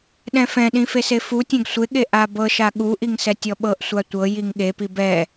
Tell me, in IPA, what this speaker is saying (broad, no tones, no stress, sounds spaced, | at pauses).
ɗ ɛ̃ f ɛ̃ ɗ ĩ f e s e f u tʲ ɛ̃ ɡ sʷ e ɠ e ʔ a b ɤ ʃ a ɠ u ʔ i ŋ s ɛ tʲ ɔ ɓ ɤ ʔ sʷ a tʷ ɤ j i ŋ ɠ e p i b ɛ